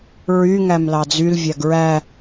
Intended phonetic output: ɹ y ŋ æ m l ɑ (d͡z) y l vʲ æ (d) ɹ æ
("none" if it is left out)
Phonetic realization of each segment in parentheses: d͡z, ɡ

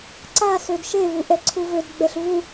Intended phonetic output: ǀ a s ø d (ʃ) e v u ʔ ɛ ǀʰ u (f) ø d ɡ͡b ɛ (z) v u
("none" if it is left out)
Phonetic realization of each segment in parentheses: ʃ, v, ɬ

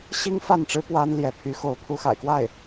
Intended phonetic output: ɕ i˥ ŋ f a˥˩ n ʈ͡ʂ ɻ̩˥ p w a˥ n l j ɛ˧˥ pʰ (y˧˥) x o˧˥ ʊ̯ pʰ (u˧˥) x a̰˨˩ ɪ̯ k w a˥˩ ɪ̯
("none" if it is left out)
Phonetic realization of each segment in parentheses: y˧˥, u˧˥

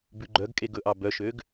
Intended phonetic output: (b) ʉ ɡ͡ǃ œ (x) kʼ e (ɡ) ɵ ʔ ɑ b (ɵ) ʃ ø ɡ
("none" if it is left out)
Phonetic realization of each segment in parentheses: b, ɡ, ɡ, œ

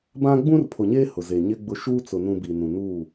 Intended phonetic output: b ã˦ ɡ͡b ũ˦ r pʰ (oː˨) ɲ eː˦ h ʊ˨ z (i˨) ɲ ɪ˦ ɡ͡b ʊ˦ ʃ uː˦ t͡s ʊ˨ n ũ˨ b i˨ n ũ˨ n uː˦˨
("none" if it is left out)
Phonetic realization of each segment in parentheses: o˨, e˨

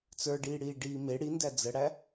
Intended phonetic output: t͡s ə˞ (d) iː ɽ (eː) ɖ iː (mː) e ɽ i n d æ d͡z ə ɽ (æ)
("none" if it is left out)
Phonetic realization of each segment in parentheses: ɖ, iː, m, æ

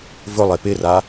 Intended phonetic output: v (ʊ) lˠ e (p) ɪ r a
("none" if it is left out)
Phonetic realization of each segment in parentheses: ʊ, p

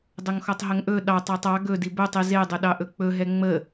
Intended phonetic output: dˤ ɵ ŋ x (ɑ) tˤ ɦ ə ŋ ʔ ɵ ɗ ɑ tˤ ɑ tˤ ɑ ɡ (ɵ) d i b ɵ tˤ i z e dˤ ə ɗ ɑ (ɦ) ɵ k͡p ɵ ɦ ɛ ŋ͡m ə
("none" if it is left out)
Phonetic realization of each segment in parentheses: ɔ, ɵ, ʔ

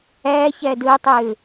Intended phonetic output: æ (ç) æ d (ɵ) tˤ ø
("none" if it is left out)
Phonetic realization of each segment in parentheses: ç, ɵ

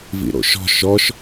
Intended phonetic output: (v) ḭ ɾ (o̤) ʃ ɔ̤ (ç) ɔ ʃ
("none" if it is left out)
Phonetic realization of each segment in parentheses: v, o̰, ʃ

